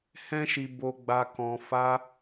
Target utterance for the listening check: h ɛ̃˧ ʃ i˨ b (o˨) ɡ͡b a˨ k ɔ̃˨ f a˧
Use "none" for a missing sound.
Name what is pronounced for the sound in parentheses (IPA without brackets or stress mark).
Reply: o˨